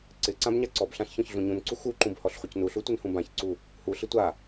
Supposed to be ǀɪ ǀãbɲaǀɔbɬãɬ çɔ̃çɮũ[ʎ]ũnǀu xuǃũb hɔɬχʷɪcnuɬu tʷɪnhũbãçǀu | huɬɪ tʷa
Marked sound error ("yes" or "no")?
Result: yes